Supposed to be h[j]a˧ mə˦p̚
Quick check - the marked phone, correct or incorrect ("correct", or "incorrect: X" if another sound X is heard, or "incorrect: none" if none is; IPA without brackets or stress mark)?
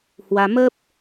incorrect: w